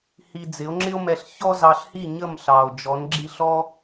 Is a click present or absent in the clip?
present